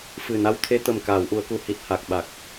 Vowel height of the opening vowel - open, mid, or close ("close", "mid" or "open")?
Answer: close